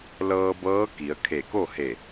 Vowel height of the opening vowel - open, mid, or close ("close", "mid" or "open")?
mid